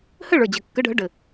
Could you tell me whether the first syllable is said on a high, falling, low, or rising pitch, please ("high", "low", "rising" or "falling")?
falling